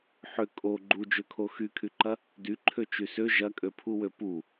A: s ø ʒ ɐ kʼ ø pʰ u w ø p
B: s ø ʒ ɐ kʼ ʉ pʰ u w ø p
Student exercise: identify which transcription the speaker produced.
A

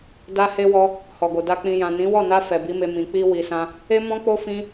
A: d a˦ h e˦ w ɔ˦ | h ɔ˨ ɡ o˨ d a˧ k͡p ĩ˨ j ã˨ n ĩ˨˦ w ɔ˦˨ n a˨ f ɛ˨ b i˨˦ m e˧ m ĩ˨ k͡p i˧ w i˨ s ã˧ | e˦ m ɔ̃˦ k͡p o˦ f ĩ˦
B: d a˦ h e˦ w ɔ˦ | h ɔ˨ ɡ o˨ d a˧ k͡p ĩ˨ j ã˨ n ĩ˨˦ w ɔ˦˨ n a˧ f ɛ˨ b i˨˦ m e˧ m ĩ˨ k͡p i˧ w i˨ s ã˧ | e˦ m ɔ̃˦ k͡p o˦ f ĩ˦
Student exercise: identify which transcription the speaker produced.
B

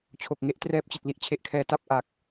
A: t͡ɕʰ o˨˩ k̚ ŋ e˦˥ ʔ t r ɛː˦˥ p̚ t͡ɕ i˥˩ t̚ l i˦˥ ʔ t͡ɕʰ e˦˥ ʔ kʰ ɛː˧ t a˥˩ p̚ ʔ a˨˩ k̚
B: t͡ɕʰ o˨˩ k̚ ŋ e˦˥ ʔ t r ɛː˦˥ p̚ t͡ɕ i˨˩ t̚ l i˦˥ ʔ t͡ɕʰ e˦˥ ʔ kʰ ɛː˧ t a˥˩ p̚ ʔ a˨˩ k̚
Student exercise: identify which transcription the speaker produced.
B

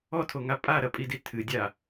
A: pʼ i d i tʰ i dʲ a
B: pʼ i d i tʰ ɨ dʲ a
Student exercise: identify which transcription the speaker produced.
B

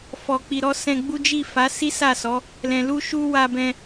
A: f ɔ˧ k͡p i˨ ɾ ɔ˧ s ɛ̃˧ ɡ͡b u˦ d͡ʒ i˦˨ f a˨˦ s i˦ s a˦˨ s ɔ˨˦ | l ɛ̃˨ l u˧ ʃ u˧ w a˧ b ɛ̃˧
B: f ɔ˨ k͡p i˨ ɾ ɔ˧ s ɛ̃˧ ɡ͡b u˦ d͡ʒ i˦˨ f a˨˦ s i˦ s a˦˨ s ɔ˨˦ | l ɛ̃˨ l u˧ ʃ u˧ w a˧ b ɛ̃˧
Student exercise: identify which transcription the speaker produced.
B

